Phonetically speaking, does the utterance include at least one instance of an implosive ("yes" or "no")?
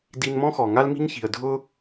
no